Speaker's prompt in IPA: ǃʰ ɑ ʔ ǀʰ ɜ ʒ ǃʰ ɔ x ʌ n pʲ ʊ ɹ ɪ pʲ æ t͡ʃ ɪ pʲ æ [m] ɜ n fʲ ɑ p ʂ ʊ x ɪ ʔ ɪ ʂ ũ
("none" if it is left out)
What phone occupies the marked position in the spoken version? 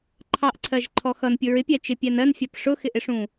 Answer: n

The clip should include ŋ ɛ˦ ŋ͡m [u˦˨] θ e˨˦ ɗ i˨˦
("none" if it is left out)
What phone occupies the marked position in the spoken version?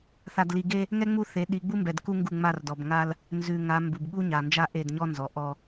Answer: u˦˨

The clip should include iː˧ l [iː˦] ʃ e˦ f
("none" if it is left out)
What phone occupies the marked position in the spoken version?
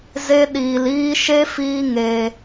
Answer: iː˦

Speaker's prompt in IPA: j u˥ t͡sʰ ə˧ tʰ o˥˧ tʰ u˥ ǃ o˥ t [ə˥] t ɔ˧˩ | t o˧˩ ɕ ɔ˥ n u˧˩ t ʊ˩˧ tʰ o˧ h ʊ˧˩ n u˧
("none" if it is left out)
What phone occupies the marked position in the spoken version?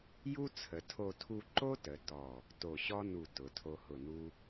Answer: ə˩˧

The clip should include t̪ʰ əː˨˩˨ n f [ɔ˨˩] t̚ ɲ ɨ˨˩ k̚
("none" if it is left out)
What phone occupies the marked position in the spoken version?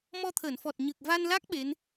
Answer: ɔ˨˩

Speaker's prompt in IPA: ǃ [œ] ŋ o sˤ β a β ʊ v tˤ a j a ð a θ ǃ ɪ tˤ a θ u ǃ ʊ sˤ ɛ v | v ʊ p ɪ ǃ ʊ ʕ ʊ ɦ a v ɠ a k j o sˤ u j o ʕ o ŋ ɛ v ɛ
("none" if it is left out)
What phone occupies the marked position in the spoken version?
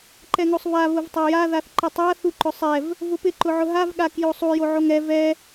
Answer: ɛ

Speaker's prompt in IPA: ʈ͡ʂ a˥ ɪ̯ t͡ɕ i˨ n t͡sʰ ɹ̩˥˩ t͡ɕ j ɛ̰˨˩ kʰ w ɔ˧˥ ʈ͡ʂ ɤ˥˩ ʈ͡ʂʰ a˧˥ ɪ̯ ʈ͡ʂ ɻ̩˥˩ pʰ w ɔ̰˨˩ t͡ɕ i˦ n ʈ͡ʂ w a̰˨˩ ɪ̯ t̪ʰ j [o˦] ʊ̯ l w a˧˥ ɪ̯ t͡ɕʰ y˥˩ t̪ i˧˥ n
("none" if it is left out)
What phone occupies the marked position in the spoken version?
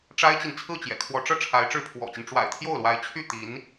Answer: o˥˩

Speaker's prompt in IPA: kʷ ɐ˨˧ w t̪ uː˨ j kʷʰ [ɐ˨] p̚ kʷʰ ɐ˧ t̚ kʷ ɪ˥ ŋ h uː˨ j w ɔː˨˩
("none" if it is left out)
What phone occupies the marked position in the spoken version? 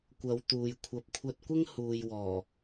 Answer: ɐ˨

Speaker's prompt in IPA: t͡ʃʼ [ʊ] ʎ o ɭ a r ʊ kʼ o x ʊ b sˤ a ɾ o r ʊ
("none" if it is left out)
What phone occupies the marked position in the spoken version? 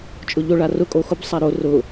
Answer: ʊ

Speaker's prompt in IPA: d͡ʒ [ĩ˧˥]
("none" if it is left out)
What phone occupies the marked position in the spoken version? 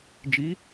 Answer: i˧˥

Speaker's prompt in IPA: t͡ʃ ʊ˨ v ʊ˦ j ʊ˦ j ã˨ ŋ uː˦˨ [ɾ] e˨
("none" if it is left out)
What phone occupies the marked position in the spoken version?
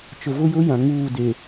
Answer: d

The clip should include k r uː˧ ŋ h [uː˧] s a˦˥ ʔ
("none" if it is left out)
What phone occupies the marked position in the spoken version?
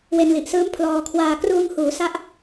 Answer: uː˩˦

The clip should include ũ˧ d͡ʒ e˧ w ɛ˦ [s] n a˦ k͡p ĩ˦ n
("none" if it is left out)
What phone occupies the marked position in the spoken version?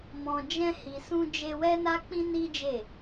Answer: none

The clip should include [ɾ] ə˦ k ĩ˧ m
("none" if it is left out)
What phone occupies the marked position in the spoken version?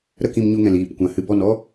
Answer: ɾ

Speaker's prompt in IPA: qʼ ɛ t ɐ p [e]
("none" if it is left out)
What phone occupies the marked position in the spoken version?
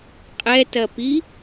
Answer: i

